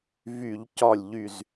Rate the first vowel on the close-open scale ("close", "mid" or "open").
close